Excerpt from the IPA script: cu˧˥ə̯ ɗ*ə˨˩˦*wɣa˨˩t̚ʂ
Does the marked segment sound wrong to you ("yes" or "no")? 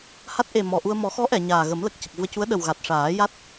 yes